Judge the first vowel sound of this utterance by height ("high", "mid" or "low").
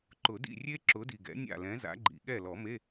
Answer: high